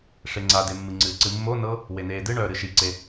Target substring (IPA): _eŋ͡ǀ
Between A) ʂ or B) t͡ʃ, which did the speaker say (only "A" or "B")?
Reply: A